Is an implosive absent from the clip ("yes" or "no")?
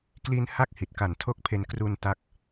yes